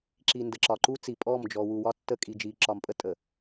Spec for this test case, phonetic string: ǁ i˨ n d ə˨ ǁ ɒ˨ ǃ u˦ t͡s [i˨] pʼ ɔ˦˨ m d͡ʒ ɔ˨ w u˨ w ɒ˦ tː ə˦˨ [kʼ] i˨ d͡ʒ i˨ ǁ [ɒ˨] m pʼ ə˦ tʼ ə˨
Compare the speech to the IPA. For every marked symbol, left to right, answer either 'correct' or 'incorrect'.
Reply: correct, correct, correct

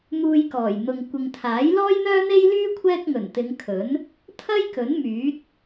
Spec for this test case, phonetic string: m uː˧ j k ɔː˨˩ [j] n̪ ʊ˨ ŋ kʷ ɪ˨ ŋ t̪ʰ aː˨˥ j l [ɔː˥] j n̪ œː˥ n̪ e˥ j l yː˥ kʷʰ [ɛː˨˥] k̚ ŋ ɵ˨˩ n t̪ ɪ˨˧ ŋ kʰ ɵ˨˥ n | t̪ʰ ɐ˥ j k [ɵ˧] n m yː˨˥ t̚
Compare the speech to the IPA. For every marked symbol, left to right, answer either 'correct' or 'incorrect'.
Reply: correct, correct, incorrect, incorrect

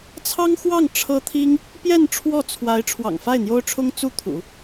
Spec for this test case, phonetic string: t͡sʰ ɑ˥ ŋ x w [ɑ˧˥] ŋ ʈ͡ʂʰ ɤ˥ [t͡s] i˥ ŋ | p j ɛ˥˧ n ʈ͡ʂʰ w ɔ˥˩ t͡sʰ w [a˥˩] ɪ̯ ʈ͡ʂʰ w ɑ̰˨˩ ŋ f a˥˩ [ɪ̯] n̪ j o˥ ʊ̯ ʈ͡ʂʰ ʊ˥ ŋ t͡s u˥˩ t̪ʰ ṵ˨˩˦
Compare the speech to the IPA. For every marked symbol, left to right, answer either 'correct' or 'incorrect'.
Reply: incorrect, incorrect, incorrect, correct

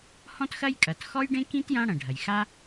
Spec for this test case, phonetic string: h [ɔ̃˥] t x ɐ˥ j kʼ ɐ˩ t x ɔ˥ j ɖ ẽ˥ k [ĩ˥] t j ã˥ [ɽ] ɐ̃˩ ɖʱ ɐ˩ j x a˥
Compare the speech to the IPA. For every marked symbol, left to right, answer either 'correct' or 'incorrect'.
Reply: correct, correct, correct

